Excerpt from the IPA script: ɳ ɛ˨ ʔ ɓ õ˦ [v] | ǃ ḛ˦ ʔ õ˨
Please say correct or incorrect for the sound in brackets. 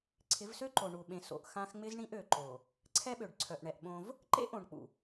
correct